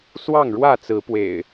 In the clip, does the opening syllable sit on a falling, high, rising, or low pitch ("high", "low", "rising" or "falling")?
falling